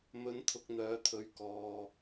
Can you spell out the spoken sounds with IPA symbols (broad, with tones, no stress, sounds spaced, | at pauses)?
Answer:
m ɵ˨˧ n t̪ʰ ʊ˧ k̚ n̪ œː˨˧ t̪ʰ ɵ˨˧ ɥ k ɔː˨